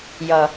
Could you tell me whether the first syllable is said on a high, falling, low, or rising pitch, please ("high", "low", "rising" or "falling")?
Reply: low